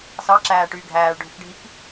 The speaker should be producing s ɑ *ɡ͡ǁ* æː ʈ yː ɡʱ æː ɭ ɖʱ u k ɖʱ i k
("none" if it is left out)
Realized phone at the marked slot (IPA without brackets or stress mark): ǁ